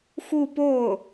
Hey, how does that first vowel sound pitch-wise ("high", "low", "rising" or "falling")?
falling